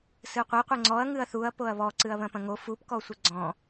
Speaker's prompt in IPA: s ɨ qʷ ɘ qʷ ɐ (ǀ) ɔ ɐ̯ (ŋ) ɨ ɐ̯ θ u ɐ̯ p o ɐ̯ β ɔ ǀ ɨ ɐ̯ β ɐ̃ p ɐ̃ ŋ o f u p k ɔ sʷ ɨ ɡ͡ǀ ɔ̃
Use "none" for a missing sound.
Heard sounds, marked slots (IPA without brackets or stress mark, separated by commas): ŋ͡ǀ, ŋ